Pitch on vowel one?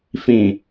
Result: low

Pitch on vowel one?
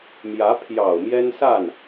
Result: rising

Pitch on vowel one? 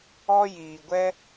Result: high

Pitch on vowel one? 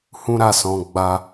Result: high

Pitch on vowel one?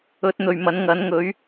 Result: rising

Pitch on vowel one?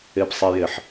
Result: high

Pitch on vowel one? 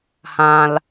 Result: high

